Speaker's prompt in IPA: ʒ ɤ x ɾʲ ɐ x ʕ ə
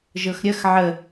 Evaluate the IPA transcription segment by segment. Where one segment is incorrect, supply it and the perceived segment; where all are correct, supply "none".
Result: none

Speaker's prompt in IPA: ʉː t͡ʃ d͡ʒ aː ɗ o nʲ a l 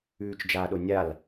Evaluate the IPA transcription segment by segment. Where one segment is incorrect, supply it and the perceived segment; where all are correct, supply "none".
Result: none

